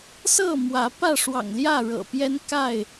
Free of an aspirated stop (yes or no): yes